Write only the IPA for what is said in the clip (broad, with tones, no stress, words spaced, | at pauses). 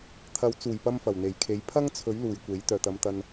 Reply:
t̪ʰɐ˨˥wt͡suː˨˩jpɐ˧m fɐ˨˩wn̪e˨˩jkʰe˨˥j pʰɐ˥ŋt͡sʰɵ˨˥ɥ luː˨jkʷe˨˥j t̪œː˨˩t̪ɐ˨˧mt̪ɐ˧n